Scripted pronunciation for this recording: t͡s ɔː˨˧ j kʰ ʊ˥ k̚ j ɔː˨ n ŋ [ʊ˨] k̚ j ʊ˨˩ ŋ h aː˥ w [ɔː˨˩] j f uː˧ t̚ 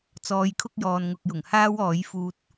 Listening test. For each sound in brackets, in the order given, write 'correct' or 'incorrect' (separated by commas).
correct, incorrect